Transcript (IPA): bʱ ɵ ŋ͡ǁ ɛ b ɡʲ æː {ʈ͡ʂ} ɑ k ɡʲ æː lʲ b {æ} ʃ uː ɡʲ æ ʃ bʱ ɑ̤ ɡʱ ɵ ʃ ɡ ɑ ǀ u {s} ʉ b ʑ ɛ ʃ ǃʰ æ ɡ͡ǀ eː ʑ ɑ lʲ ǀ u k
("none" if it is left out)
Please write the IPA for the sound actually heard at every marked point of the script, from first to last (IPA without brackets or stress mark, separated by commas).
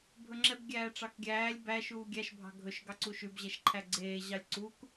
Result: ʈ͡ʂ, æ, ʃ